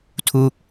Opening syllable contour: falling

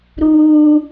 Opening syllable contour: high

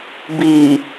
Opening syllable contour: low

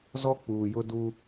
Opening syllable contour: high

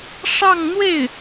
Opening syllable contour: falling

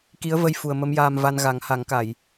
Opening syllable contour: rising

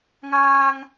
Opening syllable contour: high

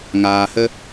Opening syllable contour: low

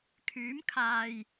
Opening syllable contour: rising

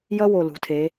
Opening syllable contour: high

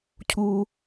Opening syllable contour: high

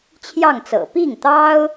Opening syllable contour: falling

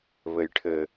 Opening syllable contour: low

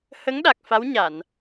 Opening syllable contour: rising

